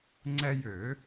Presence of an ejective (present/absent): absent